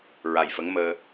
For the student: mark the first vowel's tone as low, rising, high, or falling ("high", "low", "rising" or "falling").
low